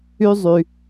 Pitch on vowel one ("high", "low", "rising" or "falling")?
high